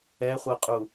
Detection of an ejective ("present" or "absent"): present